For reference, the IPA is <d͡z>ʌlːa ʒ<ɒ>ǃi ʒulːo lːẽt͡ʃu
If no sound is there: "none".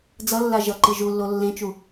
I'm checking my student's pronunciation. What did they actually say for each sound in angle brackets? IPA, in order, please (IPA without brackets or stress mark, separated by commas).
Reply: d͡z, ʌ